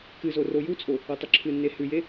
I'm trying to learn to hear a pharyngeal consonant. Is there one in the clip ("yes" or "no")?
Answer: no